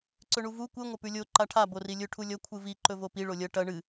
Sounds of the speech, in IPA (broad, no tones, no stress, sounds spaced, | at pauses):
ǀ ɵ ɳ u v u kʷ ɨ ŋʷ ɐ p ʉ lʲ o ǃ a ʈʰ a b o r i lʲ ɵ ʈʰ u lʲ ɐ kʷʰ ɨ v i ǃ ɵ v o p i ɭ o lʲ ɐ ʈ ɐ ɳ ɨ